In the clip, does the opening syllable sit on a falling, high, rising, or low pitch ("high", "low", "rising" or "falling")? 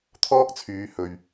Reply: high